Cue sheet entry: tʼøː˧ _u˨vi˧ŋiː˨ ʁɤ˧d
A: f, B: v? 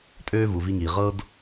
B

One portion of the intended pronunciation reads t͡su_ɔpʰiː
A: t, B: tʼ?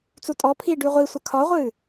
B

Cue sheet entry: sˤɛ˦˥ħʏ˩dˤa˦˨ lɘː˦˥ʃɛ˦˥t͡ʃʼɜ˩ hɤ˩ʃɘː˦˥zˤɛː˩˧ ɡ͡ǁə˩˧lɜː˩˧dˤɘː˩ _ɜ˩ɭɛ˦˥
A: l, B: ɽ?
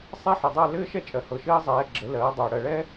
B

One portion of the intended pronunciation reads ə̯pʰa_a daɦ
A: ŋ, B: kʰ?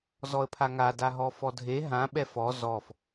A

